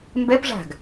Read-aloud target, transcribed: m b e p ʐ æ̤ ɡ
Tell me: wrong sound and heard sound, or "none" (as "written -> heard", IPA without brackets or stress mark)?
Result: none